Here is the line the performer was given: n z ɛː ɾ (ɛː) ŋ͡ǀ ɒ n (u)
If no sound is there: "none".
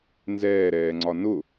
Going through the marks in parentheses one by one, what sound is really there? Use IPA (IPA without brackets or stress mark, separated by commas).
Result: ɛː, ʊ